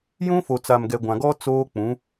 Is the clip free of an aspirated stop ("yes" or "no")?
yes